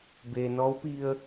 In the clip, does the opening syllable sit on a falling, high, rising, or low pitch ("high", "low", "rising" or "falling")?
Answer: low